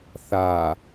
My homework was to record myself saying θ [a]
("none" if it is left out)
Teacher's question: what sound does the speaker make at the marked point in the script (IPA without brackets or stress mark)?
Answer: a